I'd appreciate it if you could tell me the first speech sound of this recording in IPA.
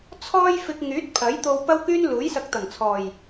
t͡sʰ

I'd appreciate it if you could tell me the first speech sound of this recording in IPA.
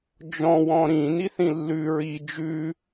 d͡ʒ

